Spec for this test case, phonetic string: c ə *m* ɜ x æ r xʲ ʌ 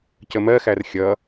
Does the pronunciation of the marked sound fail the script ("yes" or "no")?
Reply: no